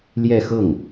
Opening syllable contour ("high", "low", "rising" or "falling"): falling